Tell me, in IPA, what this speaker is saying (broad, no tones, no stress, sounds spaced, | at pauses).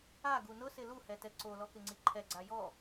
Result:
a ɡ u n ʊ s ɪ l u h ɛ t ɛ ǀ o l ɔ k ɪ ŋ͡ǀ i ǃʰ ɛ ɡ͡ǀ a j ɔ